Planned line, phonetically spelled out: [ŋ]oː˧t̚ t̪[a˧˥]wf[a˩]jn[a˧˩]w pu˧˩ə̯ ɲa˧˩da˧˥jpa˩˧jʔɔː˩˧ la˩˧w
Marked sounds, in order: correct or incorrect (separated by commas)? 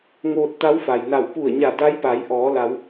correct, correct, correct, correct